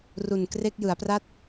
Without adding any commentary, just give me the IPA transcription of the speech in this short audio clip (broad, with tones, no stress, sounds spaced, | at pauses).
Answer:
r u˨˩ n k r e˥˩ k̚ j ɯ˩˦ a̯ p r a˥˩ t̚